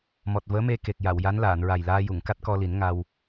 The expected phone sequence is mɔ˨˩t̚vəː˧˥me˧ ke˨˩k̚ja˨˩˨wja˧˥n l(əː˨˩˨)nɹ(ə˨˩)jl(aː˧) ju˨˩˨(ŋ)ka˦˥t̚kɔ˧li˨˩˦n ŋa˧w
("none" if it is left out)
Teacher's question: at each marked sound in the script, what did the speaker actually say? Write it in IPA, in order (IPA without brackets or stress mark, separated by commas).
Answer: aː˨˩˨, a˨˩, aː˧, ŋ